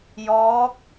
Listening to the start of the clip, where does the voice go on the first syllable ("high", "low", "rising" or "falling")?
rising